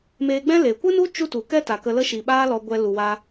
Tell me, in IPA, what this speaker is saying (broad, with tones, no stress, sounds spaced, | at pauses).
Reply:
m eː˧ ɡ͡b ɛ̃˦ l eː˨ kʷ ɨ˦ n u˦ t͡ʃ u˦ t u˨ k ɛ˦ t a˨ k ə˧ l ə˦ ʃ i˨ ɓ aː˦ l ɔ˧ ɡʷ ɛ˧ l u˨ w a˧